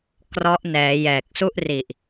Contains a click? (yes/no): no